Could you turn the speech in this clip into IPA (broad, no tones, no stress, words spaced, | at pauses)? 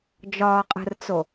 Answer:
d͡ʒɒːqʼə̤rt͡so